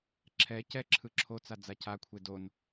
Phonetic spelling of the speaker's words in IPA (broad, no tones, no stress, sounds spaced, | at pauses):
ǁʰ ɛ c ɛ ǁʰ ɯ ǁʰ o t͡s a d͡z a c a kʷʰ e d o n